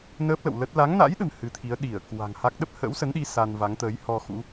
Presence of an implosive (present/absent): present